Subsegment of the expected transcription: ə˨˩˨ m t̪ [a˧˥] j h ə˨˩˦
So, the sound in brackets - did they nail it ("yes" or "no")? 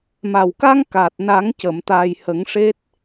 no